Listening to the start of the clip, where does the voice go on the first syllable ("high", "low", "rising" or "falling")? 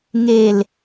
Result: low